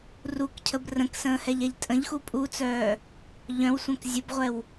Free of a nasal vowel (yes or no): no